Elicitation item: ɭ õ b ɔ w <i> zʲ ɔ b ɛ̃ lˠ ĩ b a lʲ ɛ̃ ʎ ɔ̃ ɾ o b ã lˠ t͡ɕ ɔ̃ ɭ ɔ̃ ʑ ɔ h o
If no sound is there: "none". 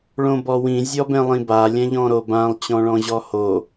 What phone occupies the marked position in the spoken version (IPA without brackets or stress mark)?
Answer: ĩ